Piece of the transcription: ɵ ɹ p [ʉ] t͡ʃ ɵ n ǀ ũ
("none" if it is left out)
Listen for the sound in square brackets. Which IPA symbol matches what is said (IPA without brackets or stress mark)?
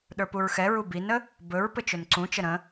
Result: ɘ